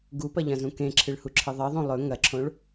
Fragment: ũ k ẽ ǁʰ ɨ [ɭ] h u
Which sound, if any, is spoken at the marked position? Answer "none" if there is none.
ɭ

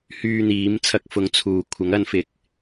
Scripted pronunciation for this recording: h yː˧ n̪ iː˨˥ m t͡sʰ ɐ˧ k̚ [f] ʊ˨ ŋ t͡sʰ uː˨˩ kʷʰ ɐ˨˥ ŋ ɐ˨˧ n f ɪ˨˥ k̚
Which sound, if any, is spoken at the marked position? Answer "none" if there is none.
f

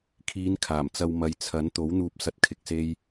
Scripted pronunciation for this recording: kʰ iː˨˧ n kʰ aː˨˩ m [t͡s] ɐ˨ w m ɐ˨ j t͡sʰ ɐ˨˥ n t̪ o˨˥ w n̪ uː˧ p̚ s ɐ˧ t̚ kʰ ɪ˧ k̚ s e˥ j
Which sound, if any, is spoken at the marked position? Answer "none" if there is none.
t͡s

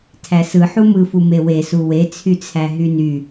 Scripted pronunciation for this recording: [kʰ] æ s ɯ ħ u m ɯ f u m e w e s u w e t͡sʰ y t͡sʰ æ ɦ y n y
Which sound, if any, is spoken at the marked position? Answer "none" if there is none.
tʰ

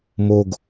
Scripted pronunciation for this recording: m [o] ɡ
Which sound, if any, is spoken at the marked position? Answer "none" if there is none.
o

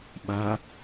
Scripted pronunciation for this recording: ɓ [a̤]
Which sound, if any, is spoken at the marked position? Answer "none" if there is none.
a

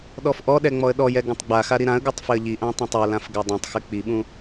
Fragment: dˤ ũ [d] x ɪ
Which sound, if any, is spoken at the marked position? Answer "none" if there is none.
tˤ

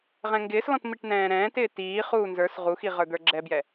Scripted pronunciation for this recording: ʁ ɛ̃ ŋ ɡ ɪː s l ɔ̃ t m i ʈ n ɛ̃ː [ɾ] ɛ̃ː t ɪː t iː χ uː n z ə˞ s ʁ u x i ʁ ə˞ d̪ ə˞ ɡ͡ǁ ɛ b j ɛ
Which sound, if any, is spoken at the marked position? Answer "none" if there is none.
ɾ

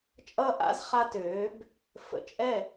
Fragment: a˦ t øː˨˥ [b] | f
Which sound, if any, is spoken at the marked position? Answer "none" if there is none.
b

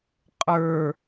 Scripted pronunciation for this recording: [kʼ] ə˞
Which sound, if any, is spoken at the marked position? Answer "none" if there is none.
qʼ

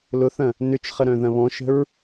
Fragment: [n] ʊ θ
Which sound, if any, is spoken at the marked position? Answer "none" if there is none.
l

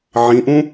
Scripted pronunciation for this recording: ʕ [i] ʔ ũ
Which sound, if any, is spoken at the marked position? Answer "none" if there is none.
ĩ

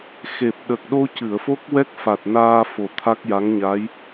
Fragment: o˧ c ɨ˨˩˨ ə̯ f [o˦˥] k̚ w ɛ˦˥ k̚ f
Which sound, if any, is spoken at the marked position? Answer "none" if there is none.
o˦˥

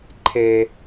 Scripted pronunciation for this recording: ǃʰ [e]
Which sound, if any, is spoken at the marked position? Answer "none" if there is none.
e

